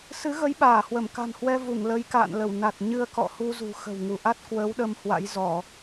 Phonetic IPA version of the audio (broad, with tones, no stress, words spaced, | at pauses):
sɨ˨˦ɣə˨˦j ɓaː˧˩hwə˧˩mka̤˨˩nhwɛ˧ vu˧˩ŋlə˨˦j ka̰ː˧˨nlə˧˩w na˨˩t̚ ɲɨ˧ə̯kɔ̰˧˨hu˧zṳ˨˩ xə̤˨˩wŋu˧˩ʔa˦˥t̚ kwəː˨˦wɗə˧mhwa̰˧˥j zɔ˧˩˨